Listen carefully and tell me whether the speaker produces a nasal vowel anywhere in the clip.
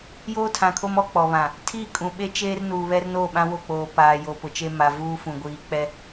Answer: yes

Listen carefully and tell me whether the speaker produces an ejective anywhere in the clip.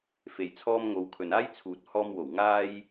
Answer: no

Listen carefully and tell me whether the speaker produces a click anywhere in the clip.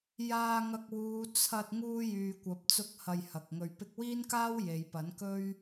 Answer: no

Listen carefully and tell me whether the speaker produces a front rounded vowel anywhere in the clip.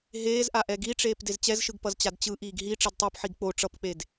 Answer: no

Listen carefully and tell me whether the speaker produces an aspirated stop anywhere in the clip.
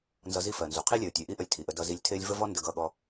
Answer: yes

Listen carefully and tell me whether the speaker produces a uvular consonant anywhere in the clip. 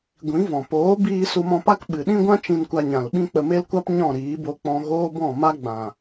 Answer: no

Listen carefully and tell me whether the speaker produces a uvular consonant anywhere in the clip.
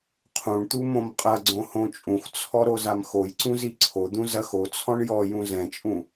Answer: yes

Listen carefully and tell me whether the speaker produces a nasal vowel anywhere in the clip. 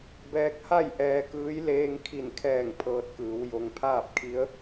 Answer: no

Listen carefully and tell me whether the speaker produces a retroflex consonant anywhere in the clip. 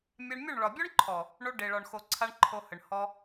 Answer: yes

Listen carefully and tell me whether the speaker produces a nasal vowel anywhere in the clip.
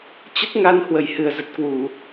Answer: no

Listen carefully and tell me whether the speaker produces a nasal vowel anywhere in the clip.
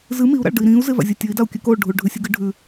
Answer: yes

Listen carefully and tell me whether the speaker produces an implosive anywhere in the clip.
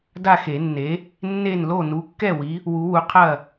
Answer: no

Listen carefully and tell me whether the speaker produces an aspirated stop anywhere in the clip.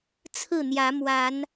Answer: yes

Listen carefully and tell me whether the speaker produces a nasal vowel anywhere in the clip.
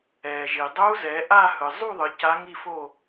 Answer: no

